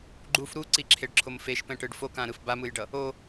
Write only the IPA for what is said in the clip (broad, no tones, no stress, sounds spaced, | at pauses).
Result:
ɡ͡ǃ u f ɾ u ǀ i ǁʰ e ɖ ǁʰ o m f e ʃ p ɛ̃ ʈ ɯ ɖ f o k ã ɾ ɯ f b a m ɯ j ɖ ʌ | o